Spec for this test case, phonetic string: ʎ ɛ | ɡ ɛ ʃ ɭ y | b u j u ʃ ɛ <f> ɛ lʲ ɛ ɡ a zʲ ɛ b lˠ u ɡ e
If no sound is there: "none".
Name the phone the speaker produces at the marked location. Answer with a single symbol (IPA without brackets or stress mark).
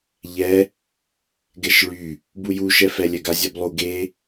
f